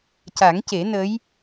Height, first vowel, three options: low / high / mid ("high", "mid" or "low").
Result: low